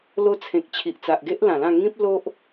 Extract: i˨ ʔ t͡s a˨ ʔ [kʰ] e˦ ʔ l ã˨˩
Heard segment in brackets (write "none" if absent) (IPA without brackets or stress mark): ɡ